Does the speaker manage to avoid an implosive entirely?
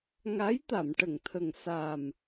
yes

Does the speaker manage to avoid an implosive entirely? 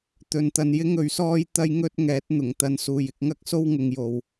yes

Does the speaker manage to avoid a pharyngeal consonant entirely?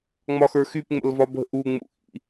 yes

